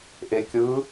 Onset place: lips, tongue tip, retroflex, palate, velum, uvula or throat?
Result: throat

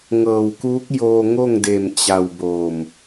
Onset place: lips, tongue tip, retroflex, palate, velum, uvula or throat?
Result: velum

